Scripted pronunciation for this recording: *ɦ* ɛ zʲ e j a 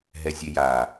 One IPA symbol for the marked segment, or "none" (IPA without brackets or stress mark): ɦ